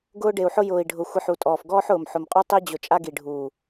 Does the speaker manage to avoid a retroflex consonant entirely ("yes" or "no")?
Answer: no